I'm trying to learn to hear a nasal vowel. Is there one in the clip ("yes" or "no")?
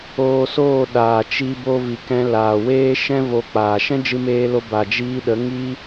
yes